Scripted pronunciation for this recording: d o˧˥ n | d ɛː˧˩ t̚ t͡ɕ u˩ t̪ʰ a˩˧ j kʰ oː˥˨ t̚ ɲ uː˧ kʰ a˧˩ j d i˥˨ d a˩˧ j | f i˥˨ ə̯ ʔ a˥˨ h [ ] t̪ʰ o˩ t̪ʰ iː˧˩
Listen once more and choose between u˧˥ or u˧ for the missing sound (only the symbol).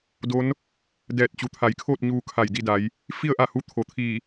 u˧˥